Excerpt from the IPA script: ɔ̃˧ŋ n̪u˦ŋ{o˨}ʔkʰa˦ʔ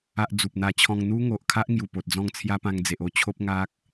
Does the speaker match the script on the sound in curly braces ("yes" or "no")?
yes